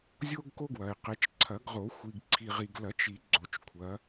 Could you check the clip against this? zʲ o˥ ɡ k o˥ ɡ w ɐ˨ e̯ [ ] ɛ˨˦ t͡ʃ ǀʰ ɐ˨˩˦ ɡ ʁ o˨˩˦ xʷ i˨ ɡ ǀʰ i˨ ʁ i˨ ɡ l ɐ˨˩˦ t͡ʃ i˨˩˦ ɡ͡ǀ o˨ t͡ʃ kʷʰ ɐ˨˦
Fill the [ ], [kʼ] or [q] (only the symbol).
q